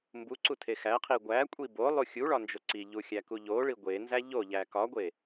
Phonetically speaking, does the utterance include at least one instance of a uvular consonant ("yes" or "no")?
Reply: yes